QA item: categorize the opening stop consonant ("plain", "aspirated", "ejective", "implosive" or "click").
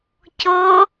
plain